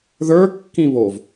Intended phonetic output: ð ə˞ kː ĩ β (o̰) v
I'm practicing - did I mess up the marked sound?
yes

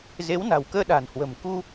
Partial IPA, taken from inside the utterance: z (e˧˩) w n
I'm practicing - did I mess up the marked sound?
yes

